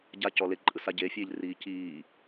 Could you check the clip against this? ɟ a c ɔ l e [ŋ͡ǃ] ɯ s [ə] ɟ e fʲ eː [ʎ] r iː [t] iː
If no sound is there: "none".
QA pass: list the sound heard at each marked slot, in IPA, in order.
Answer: ǃʼ, a, ʎ, c

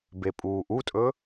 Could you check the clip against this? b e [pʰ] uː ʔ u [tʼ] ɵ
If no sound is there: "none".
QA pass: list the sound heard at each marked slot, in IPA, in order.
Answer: pʼ, tʼ

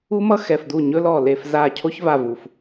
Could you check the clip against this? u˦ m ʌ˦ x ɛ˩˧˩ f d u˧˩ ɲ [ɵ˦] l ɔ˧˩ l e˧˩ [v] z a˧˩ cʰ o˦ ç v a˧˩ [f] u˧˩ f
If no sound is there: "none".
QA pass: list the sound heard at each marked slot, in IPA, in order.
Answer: ɵ˦, f, v

